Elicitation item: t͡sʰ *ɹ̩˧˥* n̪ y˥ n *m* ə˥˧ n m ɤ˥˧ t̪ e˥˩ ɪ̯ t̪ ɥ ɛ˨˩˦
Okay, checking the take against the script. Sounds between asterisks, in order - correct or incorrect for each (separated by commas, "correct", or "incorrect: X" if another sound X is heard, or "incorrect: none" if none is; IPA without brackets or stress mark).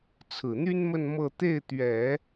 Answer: incorrect: ɹ̩˨˩, correct